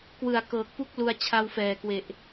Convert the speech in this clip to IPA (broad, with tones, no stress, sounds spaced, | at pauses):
k w ɯ˨˩ a̯ k ɤː˨˩ k̚ p u˥˩ k̚ l u˧ a̯ t͡ɕʰ a˧ w f ɛː˨˩ k w e˨˩ ʔ